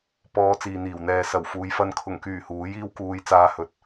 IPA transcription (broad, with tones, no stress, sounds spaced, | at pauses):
p ɔː˧ t͡s iː˨ n̪ iː˨˩ w n̪ ɛː˨ s ɐ˨˩ w f uː˨˧ j f ɐ˧ n kʰ ʊ˨˩ ŋ k yː˨˩ h uː˨˥ j iː˥ w k uː˧ j t͡s aː˧ h ɵ˨˥ t̚